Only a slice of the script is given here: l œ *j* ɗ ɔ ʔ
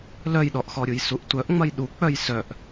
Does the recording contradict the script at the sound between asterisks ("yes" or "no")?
no